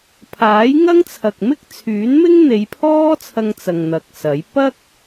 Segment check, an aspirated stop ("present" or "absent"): present